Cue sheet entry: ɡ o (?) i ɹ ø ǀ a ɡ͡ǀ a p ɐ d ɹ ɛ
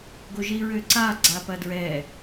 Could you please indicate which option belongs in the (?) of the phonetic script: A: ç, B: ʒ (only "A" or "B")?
B